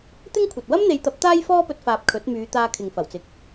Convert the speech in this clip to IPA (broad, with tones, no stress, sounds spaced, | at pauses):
t̪ ɪ˥ ŋ kʷʰ ɐ˨ t̚ w ɐ˥ m n̪ e˨˧ j t̪ ɐ˨˥ p̚ t̪ aː˥ j f ɔː˥ p ɵ˧ t̚ f aː˨ p̚ kʰ ɵ˨˥ t̚ m yː˨˧ t̪ aː˧ kʰ ɪ˨ ŋ f ɐ˨˩ w t͡s ɪ˨ k̚